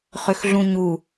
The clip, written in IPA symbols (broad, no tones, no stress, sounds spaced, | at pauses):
χ ø x ɮ ũ ɲ u